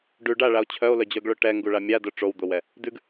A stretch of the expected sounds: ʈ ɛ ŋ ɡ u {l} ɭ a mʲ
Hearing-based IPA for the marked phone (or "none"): none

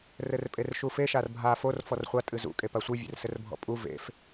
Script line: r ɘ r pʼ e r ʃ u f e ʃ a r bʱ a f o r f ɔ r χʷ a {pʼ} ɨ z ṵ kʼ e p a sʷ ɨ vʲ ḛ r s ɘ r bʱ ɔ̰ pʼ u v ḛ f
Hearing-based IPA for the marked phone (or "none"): tʼ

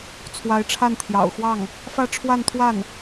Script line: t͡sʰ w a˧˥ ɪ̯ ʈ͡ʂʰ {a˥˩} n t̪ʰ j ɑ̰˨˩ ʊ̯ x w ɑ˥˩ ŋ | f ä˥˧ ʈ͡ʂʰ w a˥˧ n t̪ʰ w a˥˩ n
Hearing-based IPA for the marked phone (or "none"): a˥˩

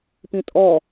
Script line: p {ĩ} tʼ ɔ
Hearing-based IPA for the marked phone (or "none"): ĩ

